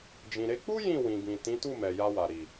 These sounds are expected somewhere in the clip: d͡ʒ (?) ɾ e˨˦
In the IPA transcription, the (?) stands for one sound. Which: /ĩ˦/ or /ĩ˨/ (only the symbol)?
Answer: ĩ˨